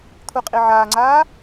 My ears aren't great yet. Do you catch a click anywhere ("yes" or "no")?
yes